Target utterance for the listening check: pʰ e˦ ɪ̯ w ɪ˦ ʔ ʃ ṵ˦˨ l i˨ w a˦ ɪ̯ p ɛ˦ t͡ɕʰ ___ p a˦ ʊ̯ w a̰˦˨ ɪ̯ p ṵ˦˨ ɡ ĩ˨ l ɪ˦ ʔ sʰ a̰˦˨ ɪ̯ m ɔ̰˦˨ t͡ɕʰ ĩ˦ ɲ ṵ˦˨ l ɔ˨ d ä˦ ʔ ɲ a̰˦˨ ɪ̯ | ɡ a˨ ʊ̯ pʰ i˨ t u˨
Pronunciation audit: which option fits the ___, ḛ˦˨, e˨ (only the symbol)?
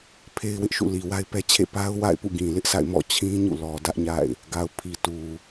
ḛ˦˨